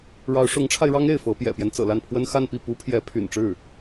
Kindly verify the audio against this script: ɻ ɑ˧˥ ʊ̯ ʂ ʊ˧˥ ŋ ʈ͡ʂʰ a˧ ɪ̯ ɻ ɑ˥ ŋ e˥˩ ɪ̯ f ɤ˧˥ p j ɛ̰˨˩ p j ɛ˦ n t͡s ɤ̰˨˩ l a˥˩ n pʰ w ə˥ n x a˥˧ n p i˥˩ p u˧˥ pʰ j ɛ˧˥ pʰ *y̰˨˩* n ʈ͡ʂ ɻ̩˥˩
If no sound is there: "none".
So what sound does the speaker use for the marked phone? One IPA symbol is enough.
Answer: y̰˨˩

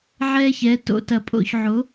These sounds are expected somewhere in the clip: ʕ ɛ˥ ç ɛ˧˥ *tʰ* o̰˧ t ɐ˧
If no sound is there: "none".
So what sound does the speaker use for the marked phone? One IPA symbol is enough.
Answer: t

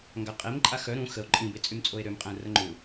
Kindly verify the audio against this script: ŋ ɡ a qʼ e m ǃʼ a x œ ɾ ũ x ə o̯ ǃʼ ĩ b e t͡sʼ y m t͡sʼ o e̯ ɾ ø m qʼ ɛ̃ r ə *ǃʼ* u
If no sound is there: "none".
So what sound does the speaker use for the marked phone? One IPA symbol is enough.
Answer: ŋ͡ǃ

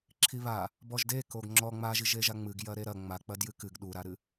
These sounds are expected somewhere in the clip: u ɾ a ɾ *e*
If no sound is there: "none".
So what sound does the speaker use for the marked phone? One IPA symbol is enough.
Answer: ɨ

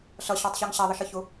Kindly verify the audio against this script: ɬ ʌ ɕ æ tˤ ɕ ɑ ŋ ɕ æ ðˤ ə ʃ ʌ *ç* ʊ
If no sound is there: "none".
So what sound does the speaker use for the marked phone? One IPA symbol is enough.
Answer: ç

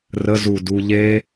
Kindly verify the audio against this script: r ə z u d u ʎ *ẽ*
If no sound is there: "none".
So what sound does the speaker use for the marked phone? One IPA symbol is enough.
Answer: e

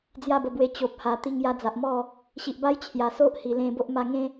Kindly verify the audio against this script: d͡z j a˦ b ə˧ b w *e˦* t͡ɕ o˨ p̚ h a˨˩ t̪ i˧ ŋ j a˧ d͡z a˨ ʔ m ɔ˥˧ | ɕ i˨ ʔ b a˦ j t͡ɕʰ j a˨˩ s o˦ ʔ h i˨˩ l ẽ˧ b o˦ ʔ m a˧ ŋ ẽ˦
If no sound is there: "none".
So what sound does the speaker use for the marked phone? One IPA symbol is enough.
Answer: e˧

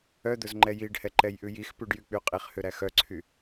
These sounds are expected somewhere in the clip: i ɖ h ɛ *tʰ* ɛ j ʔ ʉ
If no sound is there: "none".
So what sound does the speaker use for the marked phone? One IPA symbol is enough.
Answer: ǃ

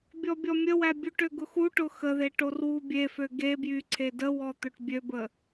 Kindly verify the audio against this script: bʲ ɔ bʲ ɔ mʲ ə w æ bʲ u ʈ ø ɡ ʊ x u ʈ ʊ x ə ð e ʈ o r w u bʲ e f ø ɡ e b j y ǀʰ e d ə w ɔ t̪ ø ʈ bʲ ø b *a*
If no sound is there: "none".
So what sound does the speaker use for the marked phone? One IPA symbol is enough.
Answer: ə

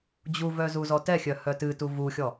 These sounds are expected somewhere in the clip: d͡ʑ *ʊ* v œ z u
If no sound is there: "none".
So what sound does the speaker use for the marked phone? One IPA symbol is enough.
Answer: u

